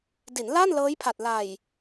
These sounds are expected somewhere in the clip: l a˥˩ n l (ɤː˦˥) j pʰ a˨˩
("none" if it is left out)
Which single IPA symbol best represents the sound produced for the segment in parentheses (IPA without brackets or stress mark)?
ɤː˦˥